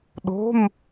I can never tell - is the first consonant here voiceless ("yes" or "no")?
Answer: no